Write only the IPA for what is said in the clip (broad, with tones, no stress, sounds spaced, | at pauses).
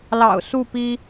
l ɑ̰˨˩ ʊ̯ s u˥˨ p i˦